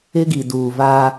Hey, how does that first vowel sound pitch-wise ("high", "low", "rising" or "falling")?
high